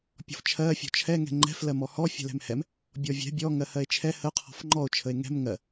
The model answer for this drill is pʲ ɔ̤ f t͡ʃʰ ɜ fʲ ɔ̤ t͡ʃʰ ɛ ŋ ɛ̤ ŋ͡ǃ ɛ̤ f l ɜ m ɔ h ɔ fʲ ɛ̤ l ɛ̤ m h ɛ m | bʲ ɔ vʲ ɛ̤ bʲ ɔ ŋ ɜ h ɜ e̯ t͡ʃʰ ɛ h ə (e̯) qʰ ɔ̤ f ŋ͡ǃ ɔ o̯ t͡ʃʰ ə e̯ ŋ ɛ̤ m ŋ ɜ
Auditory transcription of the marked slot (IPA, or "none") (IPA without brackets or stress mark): o̯